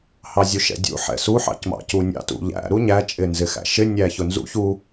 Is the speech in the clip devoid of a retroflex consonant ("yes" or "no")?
yes